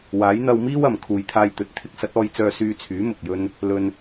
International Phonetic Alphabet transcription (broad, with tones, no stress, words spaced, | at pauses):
waː˨˥jn̪ɐ˧wmiː˥wɐ˨˩m kʰuː˨˧jt̪ʰaː˧jt̪ɵ˨˥t̚ t̪ʰɪ˨˥k̚sɐ˨˥t̚ɔː˧jt͡sœː˧ syː˧t͡sʰyː˨˥ mʊ˨k̚jɵ˥n | lɵ˧n